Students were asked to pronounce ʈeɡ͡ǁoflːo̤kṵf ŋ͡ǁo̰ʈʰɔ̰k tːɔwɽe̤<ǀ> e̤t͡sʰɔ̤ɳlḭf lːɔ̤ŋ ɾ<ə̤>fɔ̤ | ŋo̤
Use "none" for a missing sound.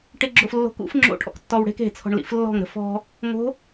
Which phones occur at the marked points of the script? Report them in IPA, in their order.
k, ə̤

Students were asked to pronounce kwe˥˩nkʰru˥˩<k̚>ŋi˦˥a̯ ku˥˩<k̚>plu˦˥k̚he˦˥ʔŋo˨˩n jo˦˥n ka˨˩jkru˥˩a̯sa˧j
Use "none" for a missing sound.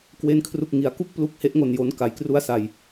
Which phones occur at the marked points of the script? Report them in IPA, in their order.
k̚, k̚

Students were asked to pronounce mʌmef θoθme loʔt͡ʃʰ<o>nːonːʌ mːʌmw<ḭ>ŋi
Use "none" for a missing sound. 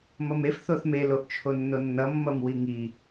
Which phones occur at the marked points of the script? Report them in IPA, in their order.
o, i

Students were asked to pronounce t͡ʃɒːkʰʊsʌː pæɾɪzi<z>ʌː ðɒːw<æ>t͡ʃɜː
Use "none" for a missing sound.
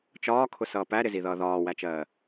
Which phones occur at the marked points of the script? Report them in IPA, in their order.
ð, æ

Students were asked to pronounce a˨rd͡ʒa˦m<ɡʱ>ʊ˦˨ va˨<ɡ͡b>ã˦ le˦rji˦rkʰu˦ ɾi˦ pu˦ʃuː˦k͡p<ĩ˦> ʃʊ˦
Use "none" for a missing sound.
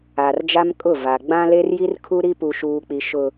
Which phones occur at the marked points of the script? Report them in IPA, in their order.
kʼ, ɡ͡b, i˦

